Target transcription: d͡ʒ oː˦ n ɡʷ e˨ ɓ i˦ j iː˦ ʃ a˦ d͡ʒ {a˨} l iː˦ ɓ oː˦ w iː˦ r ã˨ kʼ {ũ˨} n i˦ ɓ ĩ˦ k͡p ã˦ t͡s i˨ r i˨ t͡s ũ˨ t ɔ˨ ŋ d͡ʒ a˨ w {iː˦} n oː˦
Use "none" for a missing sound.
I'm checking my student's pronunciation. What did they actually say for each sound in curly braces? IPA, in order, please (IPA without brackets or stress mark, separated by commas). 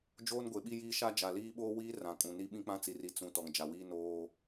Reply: a˨, ũ˨, iː˦